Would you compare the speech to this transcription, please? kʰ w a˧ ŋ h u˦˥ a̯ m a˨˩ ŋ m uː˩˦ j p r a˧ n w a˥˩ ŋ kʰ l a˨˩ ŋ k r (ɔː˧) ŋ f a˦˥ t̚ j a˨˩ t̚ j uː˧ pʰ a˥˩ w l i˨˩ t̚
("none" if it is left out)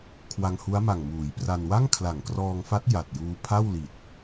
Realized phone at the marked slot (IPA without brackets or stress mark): ɔː˧